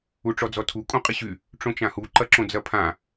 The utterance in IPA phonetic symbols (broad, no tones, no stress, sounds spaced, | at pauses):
u ʈ͡ʂ ɔ d͡z ɔ tʰ u kʼ õ qʼ ɪ ɕ y | ʈ͡ʂ õ t͡ʃ ã h u ǃ ɐ ǁ õ d͡z ɐ pʰ ã